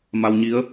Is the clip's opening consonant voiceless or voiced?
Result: voiced